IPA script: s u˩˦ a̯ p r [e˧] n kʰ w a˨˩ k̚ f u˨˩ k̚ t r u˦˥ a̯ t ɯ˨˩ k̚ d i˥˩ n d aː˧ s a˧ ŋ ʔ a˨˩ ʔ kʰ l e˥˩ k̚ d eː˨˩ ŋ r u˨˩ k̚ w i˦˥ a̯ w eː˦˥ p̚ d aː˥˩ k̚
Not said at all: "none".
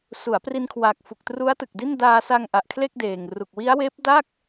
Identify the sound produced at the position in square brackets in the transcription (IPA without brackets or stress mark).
i˧